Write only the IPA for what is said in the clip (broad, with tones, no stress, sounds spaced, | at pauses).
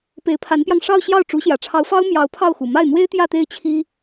p e˧˥ ɪ̯ pʰ a˧˥ n p j ɑ˧ ŋ ʂ ɑ˥˧ ʊ̯ ɕ j ɑ˥˩ ʊ̯ ʈ͡ʂ u˧˥ ɕ j ä˨˩ ʈ͡ʂʰ ɑ˧˥ ʊ̯ f ɑ˥ ʊ̯ m j ɑ˧˥ ʊ̯ pʰ ɑ˥˩ ʊ̯ x u˨˩ m a˥˩ ɪ̯ n̪ w e˥ ɪ̯ t̪ j ä˥˧ t̪ e˥˩ ɪ̯ t͡ɕʰ i˥